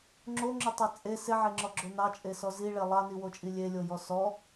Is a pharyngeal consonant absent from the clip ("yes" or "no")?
no